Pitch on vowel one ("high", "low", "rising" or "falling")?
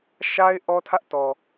high